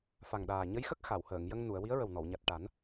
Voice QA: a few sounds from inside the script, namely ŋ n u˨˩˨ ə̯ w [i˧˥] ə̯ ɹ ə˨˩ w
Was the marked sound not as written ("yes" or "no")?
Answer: no